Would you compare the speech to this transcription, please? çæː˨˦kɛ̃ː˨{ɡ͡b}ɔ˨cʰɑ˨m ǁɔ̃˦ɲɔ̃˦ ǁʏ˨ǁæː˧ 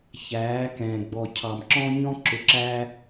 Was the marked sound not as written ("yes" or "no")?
no